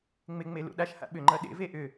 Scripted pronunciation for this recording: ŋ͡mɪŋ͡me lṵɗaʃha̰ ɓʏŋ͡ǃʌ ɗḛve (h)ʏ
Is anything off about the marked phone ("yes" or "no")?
yes